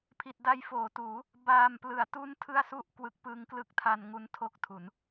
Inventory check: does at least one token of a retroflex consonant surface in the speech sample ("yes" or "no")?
no